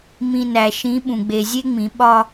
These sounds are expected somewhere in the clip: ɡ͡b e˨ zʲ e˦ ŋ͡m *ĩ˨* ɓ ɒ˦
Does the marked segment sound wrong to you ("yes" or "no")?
yes